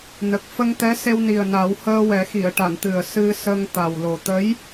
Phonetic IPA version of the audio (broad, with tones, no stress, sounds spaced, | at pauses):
n ə˨˩ k̚ f ə˧ ŋ t̪ ɛ˧˥ s e˧ w n i˨˩ ə̯ n a˨˩˦ w h əː˧ w ɛ˨˩˦ x i˨˩˨ ə̯ ʈ a˨˩˨ n t̪ ɨ˨˩ ə̯ s ɨ˧ s ə˧ ŋ t̪ a˨˩ w l o˨˩ t̪ ə˧˥ j